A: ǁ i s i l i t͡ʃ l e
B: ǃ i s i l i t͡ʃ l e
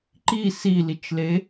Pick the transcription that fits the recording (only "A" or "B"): B